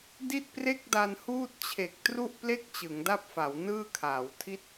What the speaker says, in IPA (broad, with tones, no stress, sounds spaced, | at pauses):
d i˥˩ t̚ p r e˥˩ k̚ d a˧ n h uː˥˩ t̚ t͡ɕʰ e˨˩ k̚ t r u˥˩ ʔ p l e˥˩ k̚ t͡ɕ ɯ˩˦ ŋ d a˥˩ p̚ f a˩˦ w n ɯː˥˩ kʰ aː˩˦ w tʰ i˦˥ t̚